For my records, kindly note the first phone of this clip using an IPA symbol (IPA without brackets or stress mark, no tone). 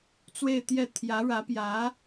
t͡s